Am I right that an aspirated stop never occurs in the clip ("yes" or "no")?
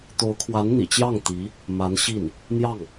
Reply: no